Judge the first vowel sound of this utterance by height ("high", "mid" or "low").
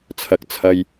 low